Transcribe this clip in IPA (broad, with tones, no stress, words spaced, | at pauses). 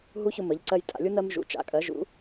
ɦu˦˥çʊ˧mə˩˧ʎ ǀɜ˧jtʼa̰˩˧lʲu˦˥ nɜ˧m ʒṵ˩˧ t͡ʃa̰˩˧kʼɜ˩˧ʒṵ˩˧